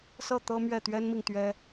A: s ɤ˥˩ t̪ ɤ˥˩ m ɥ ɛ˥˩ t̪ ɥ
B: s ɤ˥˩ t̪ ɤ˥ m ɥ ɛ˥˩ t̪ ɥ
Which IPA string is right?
B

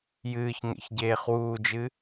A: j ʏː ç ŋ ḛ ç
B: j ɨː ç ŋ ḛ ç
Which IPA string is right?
B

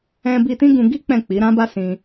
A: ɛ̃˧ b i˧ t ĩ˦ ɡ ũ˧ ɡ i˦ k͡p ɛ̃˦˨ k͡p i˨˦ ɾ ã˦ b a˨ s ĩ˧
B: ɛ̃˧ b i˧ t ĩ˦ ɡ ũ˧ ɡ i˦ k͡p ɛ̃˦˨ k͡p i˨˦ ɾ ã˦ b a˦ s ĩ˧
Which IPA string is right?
B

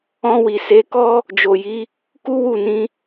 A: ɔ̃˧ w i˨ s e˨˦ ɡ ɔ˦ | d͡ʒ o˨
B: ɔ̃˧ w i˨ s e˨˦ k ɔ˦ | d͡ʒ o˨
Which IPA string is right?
B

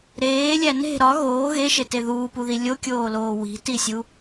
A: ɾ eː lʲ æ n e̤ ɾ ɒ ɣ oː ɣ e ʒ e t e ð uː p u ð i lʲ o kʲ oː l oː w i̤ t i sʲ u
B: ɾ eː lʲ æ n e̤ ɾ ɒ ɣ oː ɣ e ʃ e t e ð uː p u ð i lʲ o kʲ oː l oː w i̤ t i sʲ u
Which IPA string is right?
B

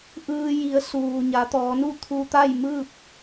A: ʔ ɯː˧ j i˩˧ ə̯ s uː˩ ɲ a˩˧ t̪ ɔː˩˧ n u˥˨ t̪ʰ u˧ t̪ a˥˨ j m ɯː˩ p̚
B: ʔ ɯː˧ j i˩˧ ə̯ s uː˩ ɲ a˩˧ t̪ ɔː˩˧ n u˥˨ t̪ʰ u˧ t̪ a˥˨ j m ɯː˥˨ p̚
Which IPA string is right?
B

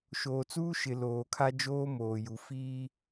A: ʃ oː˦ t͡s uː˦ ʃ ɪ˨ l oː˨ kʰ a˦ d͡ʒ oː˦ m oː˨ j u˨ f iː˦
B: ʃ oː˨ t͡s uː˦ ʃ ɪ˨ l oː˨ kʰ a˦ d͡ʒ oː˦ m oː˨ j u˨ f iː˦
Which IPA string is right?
B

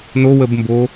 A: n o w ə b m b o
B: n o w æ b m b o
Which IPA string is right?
A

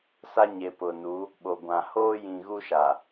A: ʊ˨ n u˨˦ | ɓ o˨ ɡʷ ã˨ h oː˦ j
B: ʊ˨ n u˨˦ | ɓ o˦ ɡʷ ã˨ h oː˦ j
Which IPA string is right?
A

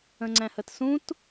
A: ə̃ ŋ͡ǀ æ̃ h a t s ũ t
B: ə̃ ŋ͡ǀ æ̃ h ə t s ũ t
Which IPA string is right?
B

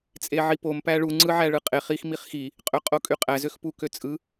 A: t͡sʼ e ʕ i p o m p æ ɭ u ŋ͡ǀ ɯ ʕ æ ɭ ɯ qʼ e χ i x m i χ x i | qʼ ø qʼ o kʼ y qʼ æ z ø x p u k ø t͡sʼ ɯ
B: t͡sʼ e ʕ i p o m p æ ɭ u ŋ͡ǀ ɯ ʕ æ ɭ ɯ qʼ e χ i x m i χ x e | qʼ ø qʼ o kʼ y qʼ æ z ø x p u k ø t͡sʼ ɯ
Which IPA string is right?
A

